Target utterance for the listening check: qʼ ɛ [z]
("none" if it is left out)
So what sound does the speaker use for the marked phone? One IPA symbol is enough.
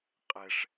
ʂ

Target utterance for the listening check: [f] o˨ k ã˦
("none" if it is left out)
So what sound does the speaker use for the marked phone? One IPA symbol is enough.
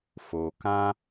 f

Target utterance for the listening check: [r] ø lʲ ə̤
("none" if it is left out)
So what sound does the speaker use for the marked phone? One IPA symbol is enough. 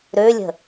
ɾ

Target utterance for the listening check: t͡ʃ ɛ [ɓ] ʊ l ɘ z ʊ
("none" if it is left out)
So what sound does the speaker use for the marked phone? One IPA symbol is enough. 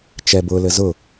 b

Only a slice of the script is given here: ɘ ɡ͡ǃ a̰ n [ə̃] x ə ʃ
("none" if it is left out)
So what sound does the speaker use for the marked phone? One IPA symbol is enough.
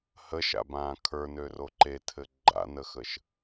ə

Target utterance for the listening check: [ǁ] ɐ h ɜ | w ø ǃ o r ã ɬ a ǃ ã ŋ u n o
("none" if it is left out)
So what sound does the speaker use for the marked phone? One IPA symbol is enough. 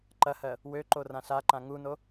ǃ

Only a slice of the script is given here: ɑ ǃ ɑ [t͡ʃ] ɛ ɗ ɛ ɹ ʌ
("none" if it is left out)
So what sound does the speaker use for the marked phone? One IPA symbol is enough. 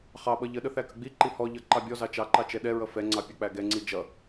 t͡ʃ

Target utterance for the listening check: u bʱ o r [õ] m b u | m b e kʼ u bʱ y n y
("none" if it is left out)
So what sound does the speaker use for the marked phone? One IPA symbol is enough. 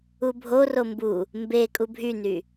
o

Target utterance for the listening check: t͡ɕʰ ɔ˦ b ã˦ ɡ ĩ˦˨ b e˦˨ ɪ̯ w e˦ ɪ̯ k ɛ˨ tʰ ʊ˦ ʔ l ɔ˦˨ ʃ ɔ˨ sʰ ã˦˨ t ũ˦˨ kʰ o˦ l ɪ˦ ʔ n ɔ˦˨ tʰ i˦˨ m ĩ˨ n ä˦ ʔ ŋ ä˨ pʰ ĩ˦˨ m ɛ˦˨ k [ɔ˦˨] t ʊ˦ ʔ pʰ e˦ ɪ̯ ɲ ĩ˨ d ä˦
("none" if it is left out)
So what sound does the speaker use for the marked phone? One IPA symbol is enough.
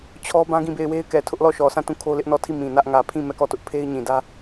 ɔ˦˨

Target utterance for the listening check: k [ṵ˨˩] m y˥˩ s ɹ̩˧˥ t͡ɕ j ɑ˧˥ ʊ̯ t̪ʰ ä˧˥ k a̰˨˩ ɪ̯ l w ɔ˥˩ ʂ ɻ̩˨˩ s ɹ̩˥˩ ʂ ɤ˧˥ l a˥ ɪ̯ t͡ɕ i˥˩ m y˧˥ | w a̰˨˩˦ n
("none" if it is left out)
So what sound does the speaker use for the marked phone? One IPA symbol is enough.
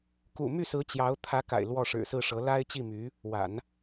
ṵ˨˩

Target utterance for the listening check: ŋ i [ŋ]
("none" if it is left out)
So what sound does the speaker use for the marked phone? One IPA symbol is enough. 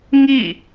none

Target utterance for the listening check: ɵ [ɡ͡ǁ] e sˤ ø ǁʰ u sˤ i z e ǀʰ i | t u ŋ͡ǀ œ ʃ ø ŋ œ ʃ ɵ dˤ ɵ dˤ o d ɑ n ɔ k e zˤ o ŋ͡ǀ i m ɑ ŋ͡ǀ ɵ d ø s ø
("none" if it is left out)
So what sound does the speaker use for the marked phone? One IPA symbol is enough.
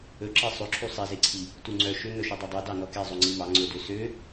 ǁ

